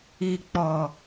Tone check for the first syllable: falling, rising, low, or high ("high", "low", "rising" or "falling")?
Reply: low